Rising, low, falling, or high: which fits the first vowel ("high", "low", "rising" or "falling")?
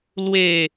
falling